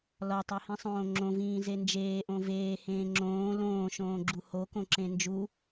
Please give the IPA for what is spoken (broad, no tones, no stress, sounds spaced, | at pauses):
l ɒ tˤ u h ĩ sˤ õː ŋ͡ǁ õ v ĩː z e n d͡ʒ eː ʔ õ v eː h ẽː ŋ͡ǁ õː l õː ʃ õː ɡ͡ǁ u h o k õ ǁ ẽ n d͡ʒ u